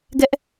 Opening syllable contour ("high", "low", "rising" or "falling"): high